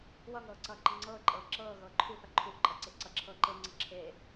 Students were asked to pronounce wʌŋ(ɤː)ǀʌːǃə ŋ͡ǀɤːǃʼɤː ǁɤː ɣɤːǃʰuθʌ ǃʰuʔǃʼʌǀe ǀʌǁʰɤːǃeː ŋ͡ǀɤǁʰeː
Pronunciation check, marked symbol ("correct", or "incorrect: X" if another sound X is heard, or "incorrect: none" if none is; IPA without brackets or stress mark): correct